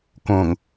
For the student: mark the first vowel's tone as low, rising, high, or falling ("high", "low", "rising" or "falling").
low